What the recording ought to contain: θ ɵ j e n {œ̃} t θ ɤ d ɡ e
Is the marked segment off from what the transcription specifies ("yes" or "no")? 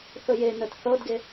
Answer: yes